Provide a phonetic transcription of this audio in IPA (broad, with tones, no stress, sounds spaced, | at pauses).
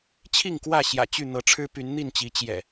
t͡ɕʰ i˥˨ ŋ k w ä˥˨ ɕ j ä̰˨˩ t͡ɕ y˥˨ n̪ ɤ˨˦ ʈ͡ʂʰ ɻ̩˦ p y˨˦ n n̪ i˥˨ n t͡ɕ i˨˦ t͡ɕ j ɛ̰˨˩